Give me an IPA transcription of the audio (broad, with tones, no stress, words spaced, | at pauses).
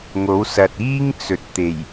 ŋo˨˥w sɐ˨t̚iː˥ŋ t͡sɵ˨t̚t̪e˨˩j